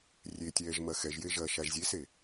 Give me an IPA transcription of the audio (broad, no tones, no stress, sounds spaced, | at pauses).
rʲ e tʲ ɛː ʒ m ɐ x ɛ ʒ j e ʒ ɐː ʃ a ʒ zʲ e s e